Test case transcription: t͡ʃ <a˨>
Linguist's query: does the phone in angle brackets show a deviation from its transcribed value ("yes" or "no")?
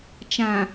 yes